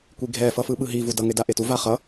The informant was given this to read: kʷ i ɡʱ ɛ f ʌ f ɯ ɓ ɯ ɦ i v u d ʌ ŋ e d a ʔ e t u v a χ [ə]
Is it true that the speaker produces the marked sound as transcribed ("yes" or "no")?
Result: no